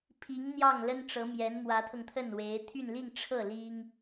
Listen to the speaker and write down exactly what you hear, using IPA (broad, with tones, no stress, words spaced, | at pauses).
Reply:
pʰi˧˥ŋn̪jɑ˥˩ŋ lə˥nʈ͡ʂɤ˧˥mjɛ˧˥n mwä˧˥t̪ʰɤ˧ŋt̪ʰə˥˩n we˧˥ɪ̯ t̪ʰy˥˧nli˥˧ŋʈ͡ʂʰɤ˥˩ li˥ŋ